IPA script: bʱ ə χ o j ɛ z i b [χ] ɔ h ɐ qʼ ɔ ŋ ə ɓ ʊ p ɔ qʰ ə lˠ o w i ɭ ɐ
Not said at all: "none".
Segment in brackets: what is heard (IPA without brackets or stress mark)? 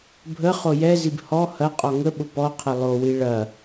h